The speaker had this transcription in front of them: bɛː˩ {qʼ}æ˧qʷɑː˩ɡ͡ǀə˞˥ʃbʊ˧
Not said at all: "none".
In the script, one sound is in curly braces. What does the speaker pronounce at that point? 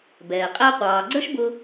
qʼ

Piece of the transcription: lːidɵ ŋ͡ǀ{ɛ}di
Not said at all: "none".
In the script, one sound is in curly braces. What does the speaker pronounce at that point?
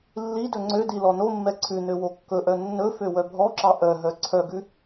ø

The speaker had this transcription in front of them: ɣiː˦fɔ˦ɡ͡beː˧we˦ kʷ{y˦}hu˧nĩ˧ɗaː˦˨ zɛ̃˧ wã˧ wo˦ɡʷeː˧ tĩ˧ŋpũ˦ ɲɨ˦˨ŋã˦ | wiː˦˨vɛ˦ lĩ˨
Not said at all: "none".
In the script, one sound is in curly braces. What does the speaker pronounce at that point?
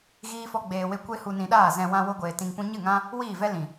e˦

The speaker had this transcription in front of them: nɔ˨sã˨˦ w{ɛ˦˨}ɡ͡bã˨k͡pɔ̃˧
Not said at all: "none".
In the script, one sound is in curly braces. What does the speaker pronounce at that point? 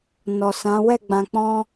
ɛ˦˨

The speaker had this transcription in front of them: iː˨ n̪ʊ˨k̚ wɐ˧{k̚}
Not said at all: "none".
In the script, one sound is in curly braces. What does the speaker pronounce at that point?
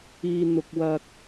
k̚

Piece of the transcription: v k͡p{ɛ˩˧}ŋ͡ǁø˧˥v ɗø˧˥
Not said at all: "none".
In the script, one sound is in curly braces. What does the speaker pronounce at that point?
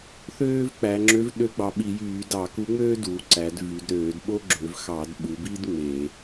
æ˩˧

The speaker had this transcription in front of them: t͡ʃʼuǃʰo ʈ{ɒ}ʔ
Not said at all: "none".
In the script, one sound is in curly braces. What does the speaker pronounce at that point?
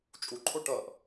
ʌ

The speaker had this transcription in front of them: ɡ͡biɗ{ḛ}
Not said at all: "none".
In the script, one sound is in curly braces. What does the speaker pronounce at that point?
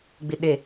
e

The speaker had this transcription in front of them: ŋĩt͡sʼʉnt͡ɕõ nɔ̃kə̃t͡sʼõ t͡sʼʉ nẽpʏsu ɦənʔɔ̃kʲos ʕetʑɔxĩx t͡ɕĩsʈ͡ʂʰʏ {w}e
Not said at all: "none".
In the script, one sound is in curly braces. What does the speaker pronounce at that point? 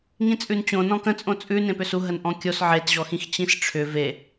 v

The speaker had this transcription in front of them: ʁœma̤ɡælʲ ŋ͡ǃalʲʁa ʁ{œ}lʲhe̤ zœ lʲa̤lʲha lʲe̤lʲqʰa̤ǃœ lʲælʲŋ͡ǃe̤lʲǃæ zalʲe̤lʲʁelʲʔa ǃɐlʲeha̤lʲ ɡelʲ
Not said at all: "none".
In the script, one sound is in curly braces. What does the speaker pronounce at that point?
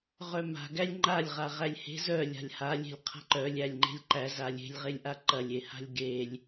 æ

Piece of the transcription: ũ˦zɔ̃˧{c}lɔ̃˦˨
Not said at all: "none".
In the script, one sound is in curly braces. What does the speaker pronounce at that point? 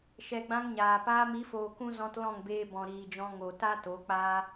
t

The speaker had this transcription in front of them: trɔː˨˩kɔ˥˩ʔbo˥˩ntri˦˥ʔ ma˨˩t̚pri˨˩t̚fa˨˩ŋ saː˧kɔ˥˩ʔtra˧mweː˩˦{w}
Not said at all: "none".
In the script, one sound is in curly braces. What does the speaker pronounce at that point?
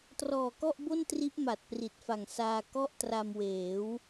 w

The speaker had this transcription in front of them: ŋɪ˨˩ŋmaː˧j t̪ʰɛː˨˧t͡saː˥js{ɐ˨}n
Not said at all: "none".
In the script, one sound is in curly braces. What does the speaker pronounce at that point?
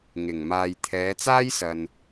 ɐ˨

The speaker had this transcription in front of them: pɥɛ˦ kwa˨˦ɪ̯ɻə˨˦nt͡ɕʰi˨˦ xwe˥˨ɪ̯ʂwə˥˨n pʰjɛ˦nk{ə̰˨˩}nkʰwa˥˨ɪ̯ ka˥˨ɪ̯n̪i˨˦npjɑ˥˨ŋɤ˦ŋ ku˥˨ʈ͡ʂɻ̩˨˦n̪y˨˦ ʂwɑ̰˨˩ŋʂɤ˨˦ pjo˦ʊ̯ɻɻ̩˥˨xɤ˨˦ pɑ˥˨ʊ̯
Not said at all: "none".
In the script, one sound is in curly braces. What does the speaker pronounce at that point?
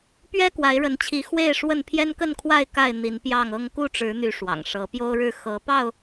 ə˥˨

